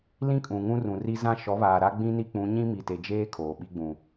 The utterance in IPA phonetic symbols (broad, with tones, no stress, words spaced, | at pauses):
lĩ˦kʼũ˨ ŋũ˦rũ˨ri˦ zã˦ ʃɔ˨˦βaː˨ɾa˦ ɡ͡bĩ˦ni˦k͡pũ˨˦ ɲĩ˦mi˨te˨d͡ʒeː˦ kʰoː˨ɓi˦ɡ͡bũ˨